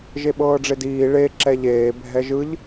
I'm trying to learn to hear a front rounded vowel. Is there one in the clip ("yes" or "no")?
no